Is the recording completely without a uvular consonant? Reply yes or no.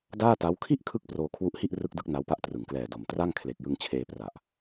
yes